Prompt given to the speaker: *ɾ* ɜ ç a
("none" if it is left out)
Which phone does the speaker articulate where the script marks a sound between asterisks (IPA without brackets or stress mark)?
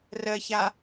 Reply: r